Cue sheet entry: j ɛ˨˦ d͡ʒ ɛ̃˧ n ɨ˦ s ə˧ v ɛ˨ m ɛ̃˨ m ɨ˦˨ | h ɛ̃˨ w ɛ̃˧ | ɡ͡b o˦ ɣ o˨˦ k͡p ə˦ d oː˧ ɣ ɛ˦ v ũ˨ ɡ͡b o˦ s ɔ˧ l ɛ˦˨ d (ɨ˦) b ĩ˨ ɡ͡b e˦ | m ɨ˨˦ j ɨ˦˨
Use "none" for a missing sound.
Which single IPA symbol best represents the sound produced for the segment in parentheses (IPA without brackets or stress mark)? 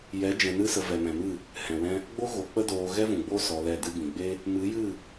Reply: ɨ˦